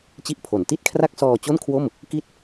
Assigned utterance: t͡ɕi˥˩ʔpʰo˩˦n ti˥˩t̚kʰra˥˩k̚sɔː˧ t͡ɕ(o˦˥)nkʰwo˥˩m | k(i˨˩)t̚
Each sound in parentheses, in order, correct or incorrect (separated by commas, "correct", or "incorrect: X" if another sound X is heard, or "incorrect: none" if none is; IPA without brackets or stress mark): incorrect: o˥˩, incorrect: i˥˩